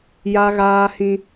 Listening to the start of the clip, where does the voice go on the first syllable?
high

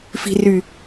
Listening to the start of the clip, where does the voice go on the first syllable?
low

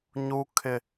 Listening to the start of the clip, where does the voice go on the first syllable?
high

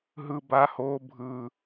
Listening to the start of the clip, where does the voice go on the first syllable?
high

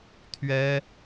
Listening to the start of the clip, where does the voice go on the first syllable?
high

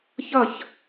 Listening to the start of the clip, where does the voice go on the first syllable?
falling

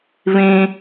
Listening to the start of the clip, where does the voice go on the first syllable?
high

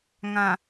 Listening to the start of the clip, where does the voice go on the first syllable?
low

